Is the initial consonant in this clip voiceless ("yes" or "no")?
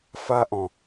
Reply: yes